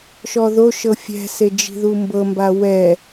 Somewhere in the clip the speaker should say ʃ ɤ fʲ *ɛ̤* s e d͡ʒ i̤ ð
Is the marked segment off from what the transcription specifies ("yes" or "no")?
no